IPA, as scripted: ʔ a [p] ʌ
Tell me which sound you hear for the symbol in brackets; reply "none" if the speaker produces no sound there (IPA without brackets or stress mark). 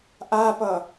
p